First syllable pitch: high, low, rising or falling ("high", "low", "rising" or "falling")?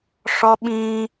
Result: high